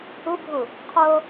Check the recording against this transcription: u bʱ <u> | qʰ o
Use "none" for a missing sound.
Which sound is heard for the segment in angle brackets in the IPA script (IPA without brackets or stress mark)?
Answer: u